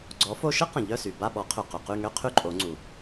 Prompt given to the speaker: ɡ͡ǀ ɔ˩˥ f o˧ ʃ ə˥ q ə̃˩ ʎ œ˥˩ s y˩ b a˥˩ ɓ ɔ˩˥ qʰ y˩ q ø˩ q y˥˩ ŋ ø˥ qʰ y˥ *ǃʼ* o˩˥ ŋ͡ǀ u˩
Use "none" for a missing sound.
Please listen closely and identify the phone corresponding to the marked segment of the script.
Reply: ǃʼ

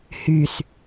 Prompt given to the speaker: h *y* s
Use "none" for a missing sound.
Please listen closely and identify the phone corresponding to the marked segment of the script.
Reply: y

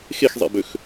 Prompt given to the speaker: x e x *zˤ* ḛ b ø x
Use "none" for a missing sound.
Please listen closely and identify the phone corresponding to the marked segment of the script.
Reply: zˤ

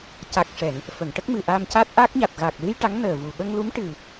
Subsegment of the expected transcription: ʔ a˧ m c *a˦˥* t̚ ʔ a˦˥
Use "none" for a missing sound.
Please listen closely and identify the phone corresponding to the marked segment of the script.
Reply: a˦˥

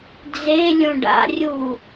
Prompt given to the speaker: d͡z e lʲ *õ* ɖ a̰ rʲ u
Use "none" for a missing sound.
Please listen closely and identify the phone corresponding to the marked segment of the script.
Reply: õ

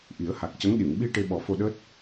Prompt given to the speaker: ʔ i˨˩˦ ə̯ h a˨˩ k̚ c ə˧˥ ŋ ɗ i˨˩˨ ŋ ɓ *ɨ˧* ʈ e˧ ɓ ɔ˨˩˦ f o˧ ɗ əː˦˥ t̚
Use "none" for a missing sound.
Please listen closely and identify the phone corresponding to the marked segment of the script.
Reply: i˧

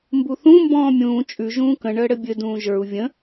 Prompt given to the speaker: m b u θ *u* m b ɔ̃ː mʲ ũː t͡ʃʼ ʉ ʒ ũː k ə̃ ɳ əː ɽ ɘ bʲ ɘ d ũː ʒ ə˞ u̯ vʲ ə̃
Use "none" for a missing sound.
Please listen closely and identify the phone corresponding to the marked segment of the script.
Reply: ũ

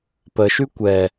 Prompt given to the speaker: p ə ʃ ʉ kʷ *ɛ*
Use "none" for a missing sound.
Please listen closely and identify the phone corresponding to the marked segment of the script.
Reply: ɛ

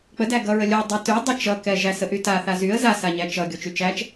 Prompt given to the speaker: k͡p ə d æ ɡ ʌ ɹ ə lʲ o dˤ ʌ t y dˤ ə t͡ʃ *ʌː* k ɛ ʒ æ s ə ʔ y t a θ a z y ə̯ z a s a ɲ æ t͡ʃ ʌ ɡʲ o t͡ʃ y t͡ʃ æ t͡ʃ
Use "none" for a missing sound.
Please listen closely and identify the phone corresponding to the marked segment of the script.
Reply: ʌ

